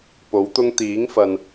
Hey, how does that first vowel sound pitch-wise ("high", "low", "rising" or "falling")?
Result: rising